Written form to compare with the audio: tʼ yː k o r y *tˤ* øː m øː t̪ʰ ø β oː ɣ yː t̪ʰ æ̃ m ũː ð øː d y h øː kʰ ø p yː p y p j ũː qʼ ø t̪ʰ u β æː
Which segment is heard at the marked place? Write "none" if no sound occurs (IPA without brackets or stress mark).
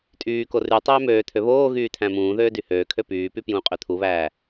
tˤ